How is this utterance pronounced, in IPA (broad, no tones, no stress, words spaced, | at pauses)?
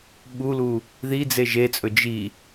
ɓulu | ðid͡ze ʒet͡sʼɵ d͡ʒi